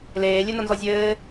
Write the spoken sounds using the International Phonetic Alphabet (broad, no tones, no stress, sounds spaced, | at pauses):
l eː lʲ ɘ n ɐ n z ɔ zʲ ɘː